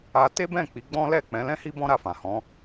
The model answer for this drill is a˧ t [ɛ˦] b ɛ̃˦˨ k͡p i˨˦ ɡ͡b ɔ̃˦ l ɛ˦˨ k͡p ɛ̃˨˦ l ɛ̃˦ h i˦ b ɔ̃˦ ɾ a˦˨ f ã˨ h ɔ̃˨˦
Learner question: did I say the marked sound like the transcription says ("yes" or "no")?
no